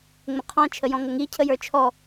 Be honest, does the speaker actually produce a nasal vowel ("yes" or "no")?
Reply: yes